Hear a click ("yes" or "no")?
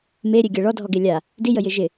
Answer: no